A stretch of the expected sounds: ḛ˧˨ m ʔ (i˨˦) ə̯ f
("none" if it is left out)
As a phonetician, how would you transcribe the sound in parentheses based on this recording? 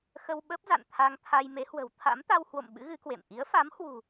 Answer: i˨˦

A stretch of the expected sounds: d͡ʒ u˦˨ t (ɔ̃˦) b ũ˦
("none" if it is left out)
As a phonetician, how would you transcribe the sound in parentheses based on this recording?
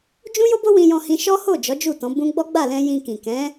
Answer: ɔ̃˨˦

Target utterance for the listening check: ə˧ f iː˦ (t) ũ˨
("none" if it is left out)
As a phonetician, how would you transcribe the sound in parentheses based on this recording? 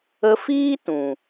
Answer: t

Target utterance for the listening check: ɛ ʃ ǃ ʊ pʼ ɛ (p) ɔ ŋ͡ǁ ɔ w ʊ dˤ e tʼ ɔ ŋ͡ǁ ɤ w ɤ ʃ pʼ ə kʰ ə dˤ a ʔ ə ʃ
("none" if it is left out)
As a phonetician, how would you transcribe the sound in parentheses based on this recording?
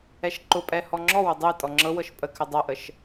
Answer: h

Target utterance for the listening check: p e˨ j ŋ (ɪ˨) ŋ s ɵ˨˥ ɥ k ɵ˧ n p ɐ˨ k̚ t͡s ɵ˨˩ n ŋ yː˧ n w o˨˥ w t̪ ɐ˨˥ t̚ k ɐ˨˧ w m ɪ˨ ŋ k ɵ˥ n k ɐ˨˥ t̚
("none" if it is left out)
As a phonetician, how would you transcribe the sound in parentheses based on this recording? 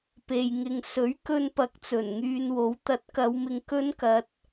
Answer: ɪ˨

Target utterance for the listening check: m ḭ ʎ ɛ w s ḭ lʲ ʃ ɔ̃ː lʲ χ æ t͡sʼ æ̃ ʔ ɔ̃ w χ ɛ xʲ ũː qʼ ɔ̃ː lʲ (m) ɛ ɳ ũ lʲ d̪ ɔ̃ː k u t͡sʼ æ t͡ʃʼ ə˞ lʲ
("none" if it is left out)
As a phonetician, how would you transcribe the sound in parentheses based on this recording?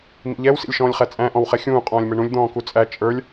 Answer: m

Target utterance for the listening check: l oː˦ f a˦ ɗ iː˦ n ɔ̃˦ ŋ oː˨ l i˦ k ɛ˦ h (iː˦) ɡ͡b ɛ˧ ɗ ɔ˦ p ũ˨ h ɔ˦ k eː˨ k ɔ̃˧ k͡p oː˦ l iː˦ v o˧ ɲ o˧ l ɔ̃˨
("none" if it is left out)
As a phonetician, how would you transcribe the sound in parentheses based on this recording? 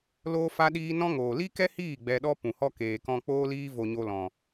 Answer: iː˦˨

